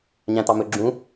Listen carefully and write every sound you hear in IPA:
ɲ æ̃ t̪ ɑ m ɵ ɡ͡ǁ ũ

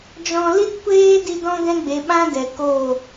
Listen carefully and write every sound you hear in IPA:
d͡ʒ ɔ̃˧ l i˦ t kʷ eː˦ d i˧ d ɔ̃˦ ɡ ɛ̃˦ ɡ͡b e˨˦ ɓ ã˦ d ɛ˨ k o˦˨

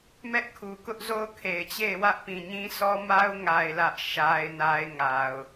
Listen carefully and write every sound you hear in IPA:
m ɛ˦ ʔ kʰ u˨ k ʊ˦ ʔ z o˦ ʊ̯ kʰ e˨ ɪ̯ t͡ɕ e˦˨ ɪ̯ w ä˦ ʔ p ĩ˨ ɲ ĩ˦ sʰ ɔ˦ m a˦ ʊ̯ ŋ a˨ ɪ̯ l ä˦ ʔ ʃ a˦ ɪ̯ n a˦ ɪ̯ ŋ a˨ ʊ̯

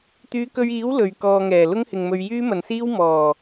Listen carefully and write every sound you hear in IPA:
t̪ yː˨˧ k ɵ˧ ɥ iː˨˥ w l ɵ˨ ɥ k ɔː˧ ŋ ɛː˨˩ l ʊ˥ ŋ h ɪ˨ ŋ m ɵ˧ ɥ j yː˥ m ɐ˨ n s iː˥ w m ɔː˨˩

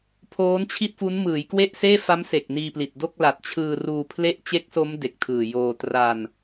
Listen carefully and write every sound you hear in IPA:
pʰ oː˦˥ n t͡ɕʰ i˥˩ t̚ f u˦˥ n m ɯː˩˦ j k w e˥˩ ʔ s eː˥˩ f a˦˥ m s e˨˩ k̚ n iː˧ p l i˨˩ t̚ d o˥˩ k̚ l a˨˩ t̚ t͡ɕʰ ɯː˧ r uː˧ pʰ l e˥˩ ʔ t͡ɕ e˦˥ k̚ s o˦˥ m d e˨˩ k̚ tʰ ɯː˨˩ j oː˧ t r a˧ n

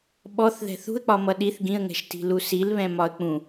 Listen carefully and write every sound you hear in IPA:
ɓ ɔ θ ð ɛ̤ θ ṳ ə̯ k͡p ɒ m ʌ ɗ i θ ɡ ĩ ə̯ ŋ ɛ̤ ʃ t i̤ l u s i l β ɛ̃ m ɒ ə̯ k͡p ũ

